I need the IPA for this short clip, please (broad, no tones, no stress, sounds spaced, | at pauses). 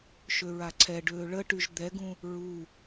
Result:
ʃ ø ɹ a ǀʰ ɛ ɖ øː ɭ ə ʈ y ʒ d̪ ɛ ɡ ũ | ɹ u